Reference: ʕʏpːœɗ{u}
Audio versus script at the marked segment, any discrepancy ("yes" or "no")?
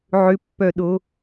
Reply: yes